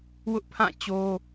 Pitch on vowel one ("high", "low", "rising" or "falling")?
high